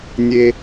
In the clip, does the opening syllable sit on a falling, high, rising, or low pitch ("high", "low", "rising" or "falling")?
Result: high